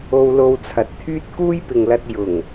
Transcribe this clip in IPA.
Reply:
o˧ w l o˧ w t͡sʰ ɐ˨ t̚ t̪ʰ yː˥ t̚ k uː˥ j p ɪ˨ ŋ l ɐ˧ t̚ j ʊ˨˩ ŋ

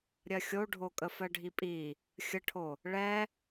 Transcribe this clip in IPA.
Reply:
ɾʲ ɜ xʲ o ɖʱ o kʼ ə f ɜ ɖʱ i pʼ i | xʲ ə ʈʰ o | ɭ ɛ

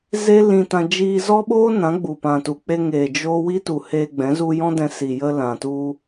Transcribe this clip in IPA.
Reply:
z e˦ l ĩ˧ t ã˧ d͡ʒ iː˧ z ɔ˦ ɓ oː˦ n ã˨˦ ɡ͡b u˨ p ã˨ t u˨ k͡p e˧ ŋ eː˨ d͡ʒ oː˦ w i˦ t u˨ h eː˧ ɡ͡b ɛ̃˨˦ z u˧ j ɔ̃˦ d ɛ̃˧ s i˨ j ə˧ l ã˨ t u˧

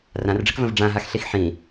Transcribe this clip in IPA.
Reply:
r ã r ɖ͡ʐ ə k v ə̃ v ɖ͡ʐ ã ɦ a x ɬ i x ħ ĩ

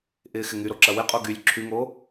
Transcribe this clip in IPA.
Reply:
ʔ ɪː x ɪ ŋ y ɾ o ǁ ɐ w ɪ qʼ o ɡ y lʲ ǁʰ y ŋ o

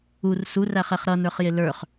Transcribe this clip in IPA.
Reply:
u r s u r æ χ ɛ χ ɾ ʌ n ə˞ χ j ɪ l ə˞ χ

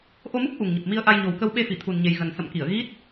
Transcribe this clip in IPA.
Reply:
ʔ o˧ m u˦˥ k̚ ʔ u˨˩ ŋ ɲ ə˨˩ p̚ m i˧ ə̯ ʔ a˧ j ɲ o˨˩ w k ə˧ w ɓ e˧ f i˧˩ t̪ʰ u˨˩ n ɲ e˨˩ j ɣ ə˨˩ n s ə̰˧˨ m k i˧˩ ə̯ ɣ i˦˥ t̚

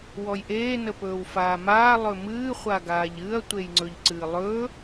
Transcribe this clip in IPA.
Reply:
w ɔ j ʔ eː n ə p ɵː w f aː m aː lˠ ɵ m ɨː χʷ a ɡ aː ʎ ɨ ɐ̯ tʷ e j ŋ͡ǀ ɵ ʎ ǀ ɨː lˠ ɵː

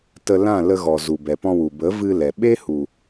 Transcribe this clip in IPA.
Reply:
t ə˧ l ã˦˨ l ə˧ ɣ ɔ˨ z u˨ b ɛ˨ p ɔ̃˧ w u˨ b ə˨˦ v ɨ˧ l ɛ˨ ɓ e˦ h u˨

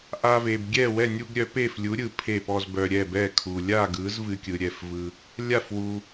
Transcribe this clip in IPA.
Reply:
ʔ a˦ v e˨ b ɡʲ ɛ˥˨ w ɛ˥˨ nʲ u˦ ɡ ɾʲ œ˨˥ p e˥˨ f lʲ u˨˥ ɾʲ ɯ˨ pʰ e˥˨ p ɔ˦ z b œ˨ ɾʲ ɛ˥˨ b ɛ˥˨ kʰ u˨ lʲ a˥˨ ɡ ɯ˨˥ z v ɨ˦ kʲ ɯ˨ ɾʲ ɛ˥˨ f v ɯ˦ | lʲ a˥˨ f w u˨

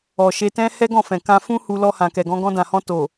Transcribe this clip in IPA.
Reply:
ɔ˨ ʃ e˧ t ɛ̃˦ h ɛ˦ ɡ ɔ̃˦˨ f ɛ̃˨ k ã˧ f ũ˦ h u˧ l ɔ˧ h ã˨ k ɛ˨ ɡ ɔ̃˧ ɡ ɔ̃˧ d ã˨ h ɔ̃˧ t o˨

